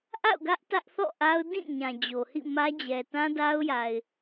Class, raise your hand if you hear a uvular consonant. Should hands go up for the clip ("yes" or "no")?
no